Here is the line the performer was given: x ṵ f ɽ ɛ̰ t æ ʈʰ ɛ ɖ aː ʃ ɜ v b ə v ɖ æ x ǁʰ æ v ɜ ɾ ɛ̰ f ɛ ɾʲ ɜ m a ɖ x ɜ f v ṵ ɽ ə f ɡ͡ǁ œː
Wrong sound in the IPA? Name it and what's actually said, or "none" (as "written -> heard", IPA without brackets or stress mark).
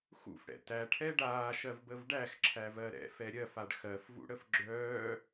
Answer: m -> f